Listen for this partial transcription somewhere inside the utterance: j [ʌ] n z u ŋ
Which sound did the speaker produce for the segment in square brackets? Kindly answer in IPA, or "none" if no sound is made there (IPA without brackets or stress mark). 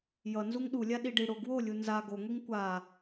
ʌ